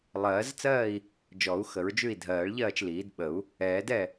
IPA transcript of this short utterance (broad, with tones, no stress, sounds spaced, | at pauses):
lˠ ɜː˨˩˦ z t͡s ɜː˥˨ i̯ | d͡ʒ ɔ˨˩˦ u̯ x ə˨˩˦ ɹ d͡ʒ ʉ˥˨ i̯ dʱ ɜː˨˩˦ ɭ ʎ ɜː˥˨ t͡ʃ l iː˨˩˦ d ɓ ə˨˩˦ u̯ | ɛː˨˩˦ d ɛ˥˨